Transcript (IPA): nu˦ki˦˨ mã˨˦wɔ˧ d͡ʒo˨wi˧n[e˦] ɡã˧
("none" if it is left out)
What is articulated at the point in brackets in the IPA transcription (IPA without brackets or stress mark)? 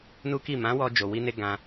e˧